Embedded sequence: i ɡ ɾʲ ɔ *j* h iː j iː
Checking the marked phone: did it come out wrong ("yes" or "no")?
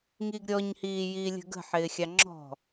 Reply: yes